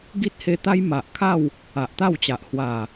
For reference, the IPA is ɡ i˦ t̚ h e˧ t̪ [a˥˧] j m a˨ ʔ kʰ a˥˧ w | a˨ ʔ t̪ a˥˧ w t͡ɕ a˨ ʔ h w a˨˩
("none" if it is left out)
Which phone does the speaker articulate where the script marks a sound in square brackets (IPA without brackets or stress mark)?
a˦